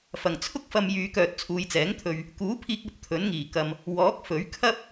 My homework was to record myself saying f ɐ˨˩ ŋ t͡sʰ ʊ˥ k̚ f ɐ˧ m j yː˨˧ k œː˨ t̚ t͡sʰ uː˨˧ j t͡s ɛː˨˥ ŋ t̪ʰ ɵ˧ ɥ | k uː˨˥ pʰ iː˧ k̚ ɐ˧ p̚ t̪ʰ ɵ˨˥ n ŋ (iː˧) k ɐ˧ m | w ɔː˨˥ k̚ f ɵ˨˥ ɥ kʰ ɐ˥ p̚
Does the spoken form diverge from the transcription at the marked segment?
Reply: yes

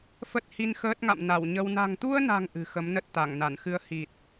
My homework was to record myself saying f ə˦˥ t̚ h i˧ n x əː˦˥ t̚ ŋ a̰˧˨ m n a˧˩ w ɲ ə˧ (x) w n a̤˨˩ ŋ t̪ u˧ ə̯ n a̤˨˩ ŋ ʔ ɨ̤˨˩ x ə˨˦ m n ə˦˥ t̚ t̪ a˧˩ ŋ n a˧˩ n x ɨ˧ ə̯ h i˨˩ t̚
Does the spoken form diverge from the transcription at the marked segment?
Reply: yes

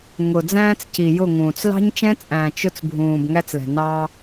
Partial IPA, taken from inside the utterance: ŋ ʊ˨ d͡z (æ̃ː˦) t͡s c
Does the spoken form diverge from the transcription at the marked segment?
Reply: no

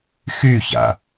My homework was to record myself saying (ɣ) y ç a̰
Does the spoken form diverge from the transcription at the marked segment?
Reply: yes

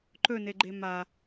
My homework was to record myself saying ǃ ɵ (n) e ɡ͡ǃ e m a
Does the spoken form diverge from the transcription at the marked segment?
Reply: no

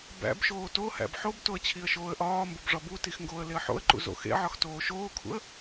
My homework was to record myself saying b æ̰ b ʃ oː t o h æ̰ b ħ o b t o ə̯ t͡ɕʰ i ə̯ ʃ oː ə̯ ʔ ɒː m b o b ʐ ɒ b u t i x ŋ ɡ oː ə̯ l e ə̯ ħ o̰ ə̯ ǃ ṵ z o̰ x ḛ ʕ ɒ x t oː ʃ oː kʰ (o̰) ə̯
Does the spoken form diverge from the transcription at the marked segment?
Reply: yes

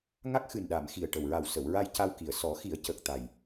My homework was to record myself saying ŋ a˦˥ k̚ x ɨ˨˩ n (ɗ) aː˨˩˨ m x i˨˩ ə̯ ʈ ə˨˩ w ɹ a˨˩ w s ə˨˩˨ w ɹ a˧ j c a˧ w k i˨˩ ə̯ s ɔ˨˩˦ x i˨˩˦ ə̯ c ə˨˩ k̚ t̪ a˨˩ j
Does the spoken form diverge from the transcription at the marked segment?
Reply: no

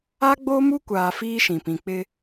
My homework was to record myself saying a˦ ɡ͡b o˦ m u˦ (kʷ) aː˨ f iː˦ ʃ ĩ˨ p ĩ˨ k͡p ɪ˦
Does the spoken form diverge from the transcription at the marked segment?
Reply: no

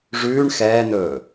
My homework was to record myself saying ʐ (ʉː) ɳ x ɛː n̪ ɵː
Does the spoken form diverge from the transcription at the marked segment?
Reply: no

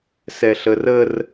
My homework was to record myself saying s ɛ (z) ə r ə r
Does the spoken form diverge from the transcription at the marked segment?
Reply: yes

